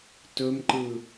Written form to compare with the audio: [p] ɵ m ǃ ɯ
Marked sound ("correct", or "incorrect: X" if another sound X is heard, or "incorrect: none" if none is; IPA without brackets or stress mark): incorrect: t